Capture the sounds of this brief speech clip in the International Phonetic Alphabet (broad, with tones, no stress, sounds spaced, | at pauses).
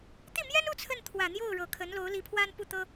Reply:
t̪ i˥˩ m j ɛ˥ n u˥˧ t͡sʰ ə˥˩ n t̪ʰ w ä˨˩ n̪ j o˥˩ ʊ̯ ɻ ɤ˨˩ kʰ ə˧˥ n l o˧˥ ʊ̯ l i˧˥ pʰ w a˥ n p u˥˩ t̪ ɤ˥